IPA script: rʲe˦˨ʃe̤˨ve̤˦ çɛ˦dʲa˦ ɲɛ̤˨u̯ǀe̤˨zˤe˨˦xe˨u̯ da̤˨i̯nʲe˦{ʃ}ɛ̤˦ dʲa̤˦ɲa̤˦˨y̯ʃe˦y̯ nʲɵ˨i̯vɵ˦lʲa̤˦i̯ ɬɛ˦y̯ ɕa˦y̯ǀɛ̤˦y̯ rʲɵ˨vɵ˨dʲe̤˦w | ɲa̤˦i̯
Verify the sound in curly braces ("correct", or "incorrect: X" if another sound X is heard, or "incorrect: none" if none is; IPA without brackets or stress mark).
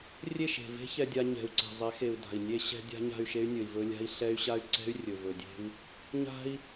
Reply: incorrect: ɕ